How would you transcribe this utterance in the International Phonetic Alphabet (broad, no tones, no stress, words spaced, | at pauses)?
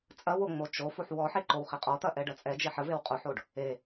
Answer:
t͡sʼɐwo ŋ͡mot͡ʃofuħ wɔħe ǃowχeqʼɔt̪ɐ ʔɛɖɐt͡sʼɛd͡ʒeħ əvew qʼoħoɖ | e